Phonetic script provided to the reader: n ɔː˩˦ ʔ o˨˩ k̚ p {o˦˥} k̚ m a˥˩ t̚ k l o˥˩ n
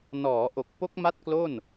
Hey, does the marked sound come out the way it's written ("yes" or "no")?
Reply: yes